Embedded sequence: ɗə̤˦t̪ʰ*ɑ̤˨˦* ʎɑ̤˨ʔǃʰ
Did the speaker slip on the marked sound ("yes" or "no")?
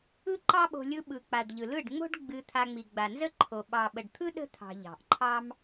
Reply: yes